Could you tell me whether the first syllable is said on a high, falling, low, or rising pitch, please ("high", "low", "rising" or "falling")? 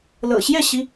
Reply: low